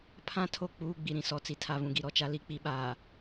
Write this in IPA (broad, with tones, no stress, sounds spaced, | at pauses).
pʰ ã˦ tʰ o˦˨ k͡p uː˦ ɡ͡b i˨ ɾ ĩ˦ s ɔ˨ t͡s i˨ tʰ a˨ β ũ˨ ɡ i˨ ɾ ɔ˨ t͡ʃ a˨ l i˨ k͡p i˨ ɓ aː˨